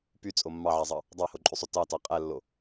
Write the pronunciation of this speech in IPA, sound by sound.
p y t͡sʼ o mː ɑ ʕ æ zˤ ɑ | dˤ ɑ h o ǃʼ y sˤ o t ɑ t ɑ qʼ æ lː o

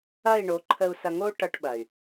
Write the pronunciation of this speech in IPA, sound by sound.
ɐ˦˨ i̯ ɳ o˨˦ ǃʰ ə˨ u̯ s ɐ˨ ŋ o˦ ʈ ʌ˦ ʈ ɓ ɐ˨ y̯

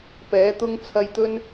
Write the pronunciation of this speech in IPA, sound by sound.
p ɛː˨˥ t̪ ʊ˥ ŋ t͡sʰ ɐ˧ j t̪ ɵ˥ n

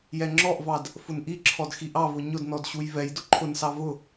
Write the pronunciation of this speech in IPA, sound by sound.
j ɛ ŋ͡ǁ ɔ ʔ v ɑ d | f ʊ n ʔ i ǁʰ ɔ d x i ʔ ɑ v ʊ ɲ ʊ d n ɔ d ɕ u j v ɛ j d ʊ ǃʰ ʊ n s ɑ v ʊ

